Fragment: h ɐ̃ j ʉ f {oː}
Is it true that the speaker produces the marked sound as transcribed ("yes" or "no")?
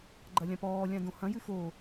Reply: yes